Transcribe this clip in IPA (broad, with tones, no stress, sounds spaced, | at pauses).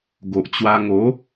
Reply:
ɡ o˨ ʔ t͡ɕ w a˧ ŋ o˨˦